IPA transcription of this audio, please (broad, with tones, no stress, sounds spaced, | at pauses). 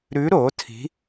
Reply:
ɾ ʉ˧˥ ɾ o˩˥ tʰ i̤˧˥